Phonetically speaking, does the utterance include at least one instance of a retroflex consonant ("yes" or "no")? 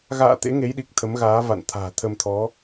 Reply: no